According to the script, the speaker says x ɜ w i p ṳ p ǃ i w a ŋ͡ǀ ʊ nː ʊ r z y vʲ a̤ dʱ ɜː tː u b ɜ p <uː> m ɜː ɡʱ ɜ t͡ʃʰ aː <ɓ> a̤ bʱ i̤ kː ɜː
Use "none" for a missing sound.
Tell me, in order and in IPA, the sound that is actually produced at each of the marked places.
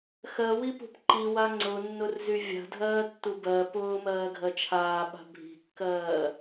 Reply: ʊː, ɓ

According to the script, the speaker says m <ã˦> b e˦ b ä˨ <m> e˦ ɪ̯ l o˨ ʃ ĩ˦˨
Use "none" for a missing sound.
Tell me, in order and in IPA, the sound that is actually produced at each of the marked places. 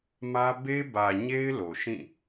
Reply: ä˦, ɲ

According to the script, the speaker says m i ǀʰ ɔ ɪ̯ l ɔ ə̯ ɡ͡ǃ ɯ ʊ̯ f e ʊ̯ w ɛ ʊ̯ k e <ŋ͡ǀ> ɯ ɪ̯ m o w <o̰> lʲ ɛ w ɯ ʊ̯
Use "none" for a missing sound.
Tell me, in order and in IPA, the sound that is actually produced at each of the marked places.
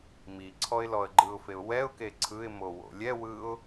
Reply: ǀʰ, o̰

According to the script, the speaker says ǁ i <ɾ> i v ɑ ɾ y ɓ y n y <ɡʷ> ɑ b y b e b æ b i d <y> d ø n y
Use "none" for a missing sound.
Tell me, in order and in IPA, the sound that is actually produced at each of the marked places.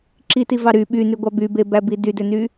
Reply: t, ɡʷ, y

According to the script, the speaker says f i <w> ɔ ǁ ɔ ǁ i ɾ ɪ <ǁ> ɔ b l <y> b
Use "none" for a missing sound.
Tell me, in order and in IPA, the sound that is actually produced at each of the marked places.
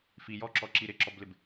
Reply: j, ǁ, ɪ

